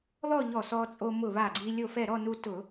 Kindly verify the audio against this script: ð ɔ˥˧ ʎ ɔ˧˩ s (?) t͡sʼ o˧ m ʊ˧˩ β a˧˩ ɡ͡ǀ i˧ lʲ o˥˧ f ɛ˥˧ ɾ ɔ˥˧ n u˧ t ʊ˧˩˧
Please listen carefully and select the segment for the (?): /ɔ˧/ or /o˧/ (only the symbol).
ɔ˧